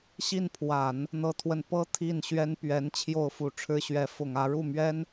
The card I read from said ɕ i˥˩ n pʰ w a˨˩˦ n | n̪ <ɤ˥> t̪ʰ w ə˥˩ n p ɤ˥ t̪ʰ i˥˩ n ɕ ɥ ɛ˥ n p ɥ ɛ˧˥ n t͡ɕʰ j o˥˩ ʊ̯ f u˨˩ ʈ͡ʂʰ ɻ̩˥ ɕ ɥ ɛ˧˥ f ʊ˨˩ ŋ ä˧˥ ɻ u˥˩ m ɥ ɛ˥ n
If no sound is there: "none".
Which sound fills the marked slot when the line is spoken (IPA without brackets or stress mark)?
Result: ɤ˥